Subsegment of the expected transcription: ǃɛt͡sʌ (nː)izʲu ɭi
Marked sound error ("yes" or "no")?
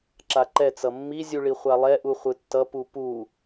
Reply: yes